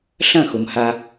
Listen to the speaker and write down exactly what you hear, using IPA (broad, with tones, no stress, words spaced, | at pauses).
ɬɐ̃˦˨xʊ˨mha˦